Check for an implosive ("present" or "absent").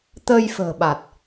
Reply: present